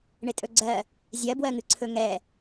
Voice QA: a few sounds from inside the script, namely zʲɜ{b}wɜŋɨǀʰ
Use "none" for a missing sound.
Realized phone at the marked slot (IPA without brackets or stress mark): b